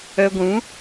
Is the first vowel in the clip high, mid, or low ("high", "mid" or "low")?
mid